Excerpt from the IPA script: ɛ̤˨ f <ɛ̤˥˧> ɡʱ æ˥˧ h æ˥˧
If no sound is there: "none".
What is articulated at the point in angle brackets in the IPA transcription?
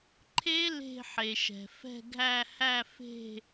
ɛ̤˥˧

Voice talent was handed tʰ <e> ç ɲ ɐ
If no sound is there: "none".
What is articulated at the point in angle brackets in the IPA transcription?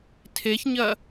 e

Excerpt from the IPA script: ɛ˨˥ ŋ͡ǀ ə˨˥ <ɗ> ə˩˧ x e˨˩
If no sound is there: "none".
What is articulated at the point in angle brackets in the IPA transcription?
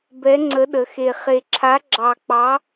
ɗ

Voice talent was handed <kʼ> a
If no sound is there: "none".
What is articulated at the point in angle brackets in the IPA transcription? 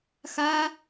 x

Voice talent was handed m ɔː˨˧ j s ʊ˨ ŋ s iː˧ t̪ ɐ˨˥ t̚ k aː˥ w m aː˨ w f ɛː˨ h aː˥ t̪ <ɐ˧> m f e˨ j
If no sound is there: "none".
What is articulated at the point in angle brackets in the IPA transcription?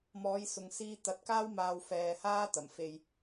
ɐ˨˩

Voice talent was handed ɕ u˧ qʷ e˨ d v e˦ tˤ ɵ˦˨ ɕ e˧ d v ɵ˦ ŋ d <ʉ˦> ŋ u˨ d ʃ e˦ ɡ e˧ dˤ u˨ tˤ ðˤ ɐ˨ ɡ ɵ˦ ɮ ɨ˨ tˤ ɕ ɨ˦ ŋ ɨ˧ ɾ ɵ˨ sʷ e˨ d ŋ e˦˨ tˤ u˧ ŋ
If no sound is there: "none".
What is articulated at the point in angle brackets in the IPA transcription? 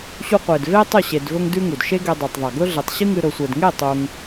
ʉ˦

